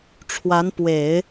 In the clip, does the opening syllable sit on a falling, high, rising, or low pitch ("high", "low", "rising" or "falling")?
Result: rising